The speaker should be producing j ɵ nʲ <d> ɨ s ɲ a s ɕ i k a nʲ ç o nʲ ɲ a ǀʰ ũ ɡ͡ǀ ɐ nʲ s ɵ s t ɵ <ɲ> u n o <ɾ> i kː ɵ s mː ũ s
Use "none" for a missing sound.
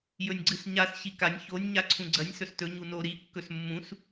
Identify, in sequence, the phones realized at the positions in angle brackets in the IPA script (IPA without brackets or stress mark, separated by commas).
ɡ͡ǀ, ɲ, ɾ